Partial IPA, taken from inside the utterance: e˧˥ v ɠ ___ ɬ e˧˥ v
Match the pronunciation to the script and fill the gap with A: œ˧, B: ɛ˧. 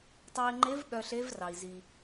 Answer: A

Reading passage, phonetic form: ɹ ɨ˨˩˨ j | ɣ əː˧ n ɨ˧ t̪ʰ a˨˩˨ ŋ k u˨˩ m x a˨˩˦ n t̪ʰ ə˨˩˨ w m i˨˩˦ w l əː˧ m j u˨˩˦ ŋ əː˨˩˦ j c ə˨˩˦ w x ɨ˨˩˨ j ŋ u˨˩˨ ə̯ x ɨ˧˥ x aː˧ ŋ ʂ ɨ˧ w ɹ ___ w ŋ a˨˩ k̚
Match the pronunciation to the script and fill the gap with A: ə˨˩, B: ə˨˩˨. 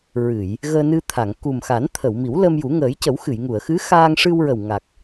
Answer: A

